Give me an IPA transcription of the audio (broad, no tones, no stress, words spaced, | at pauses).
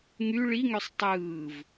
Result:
ŋy ɭiŋøsˤ tˤɯːv